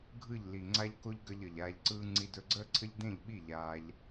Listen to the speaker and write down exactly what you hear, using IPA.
ɡʱ ɯ˦˨ ʎ l i˨ ŋ͡ǀ a˦ ʎ k o˦ ʎ ɡ ʌ˧ ʎ ʌ˨ ʎ aː˧ ʎ ǀ ɯː˦ ŋ͡ǀ i˧ d ɵ˧ ɡ͡ǀ əː˦ ǀʰ ə˦ ʎ d ẽ˦˨ ʎ ɓ i˦˨ ʎ aː˦ ʎ

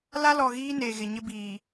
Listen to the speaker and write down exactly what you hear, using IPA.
l a˦ l ɔ˨ ɣ iː˦ n eː˨ ɣ ɪ˨ ɲ ɪ˦ b iː˨

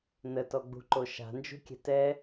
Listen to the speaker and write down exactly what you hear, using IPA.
n ə t ɔ ɡ͡b ṳ ǃ o ʃ a̤ n d͡ʒ ṳ kʲ ɛ̤ t ɛ

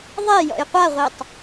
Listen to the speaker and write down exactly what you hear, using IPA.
ðˤ e j ɔ̰ j qʷ a ʁʷ i tˤ

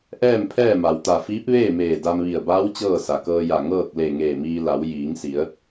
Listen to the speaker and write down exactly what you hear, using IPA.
ʔ ɛː˥˨ m pʰ ɛː˥˨ m a˩ w t̪ a˧˩ f iː˧˥ p̚ ʋ eː˥˨ m eː˧˩ d a˧ m ʋ i˧˩ ə̯ b aː˧˥ w t͡ɕ ɤː˥˨ s a˩ k ɤː˧ j a˧˩ ŋ ɤː˥˨ k̚ l e˧˩ ŋ eː˧˩ m iː˧ l a˩˧ w j iː˩˧ ŋ s i˩˧ ə̯

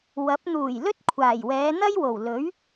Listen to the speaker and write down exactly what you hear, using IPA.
w ɐ˨˥ p̚ n̪ uː˨˩ j l ɵ˥ t̚ kʷʰ aː˨˩ j w ɛː˨˧ n̪ ɐ˥ j w o˨˩ w l ɵ˨˥ ɥ

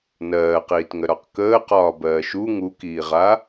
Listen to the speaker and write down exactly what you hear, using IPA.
n ɜː q iː t ŋ ə ɾ ɒ q k əː q ɒː b ɜː ʃ u ŋ u k iː ʁ a

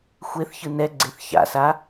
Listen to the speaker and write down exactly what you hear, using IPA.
xʷ e θ ç ɯ n ɛ ɡ͡ǀ e θ ç a̰ s a

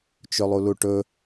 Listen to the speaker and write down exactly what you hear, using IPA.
t͡ʃ ɵ lˠ u l u ʈ ɵ

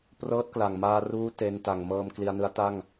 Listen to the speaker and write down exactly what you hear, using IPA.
p r ɤː˦˥ t̚ k l a˨˩ ŋ m aː˧ r uː˦˥ t e˧ n t a˨˩ ŋ m ɤː˧ m k l i˧ a̯ n ɯ˦˥ a̯ t a˥˩ ŋ

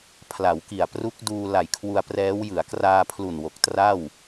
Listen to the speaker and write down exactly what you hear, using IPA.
pʰ l a˩˦ w k i˨˩ a̯ p r u˦˥ k̚ d uː˧ l a˨˩ j kʰ w u˧ a̯ p r ɛː˦˥ w j ɯ˩˦ a̯ k r aː˧ pʰ l u˨˩ n w o˨˩ k̚ t r a˥˩ w

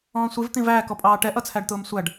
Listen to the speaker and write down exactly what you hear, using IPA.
ɔ̃ː sʷ i v t̪ ĩ v æː k ɔ pʼ ɑː ʈ ɛ ʔ ʌ t͡sʰ æ ɖ t̪ ʊː m sʷ æ ɖ

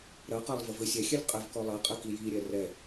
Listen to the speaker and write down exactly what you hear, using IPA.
ɾ ɐ q a lˠ v ɘ v ɘ sʲ ɛ xʲ ɛ lʲ qʼ ɘ v k ɔ lˠ ɐ qʼ ɘ k i j i ɾʲ ɛ r ɛ

